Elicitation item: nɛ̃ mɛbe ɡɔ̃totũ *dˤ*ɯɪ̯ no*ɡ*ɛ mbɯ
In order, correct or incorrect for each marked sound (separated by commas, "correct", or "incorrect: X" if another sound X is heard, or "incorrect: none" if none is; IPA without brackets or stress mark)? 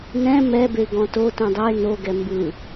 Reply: correct, correct